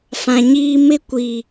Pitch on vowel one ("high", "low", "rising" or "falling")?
low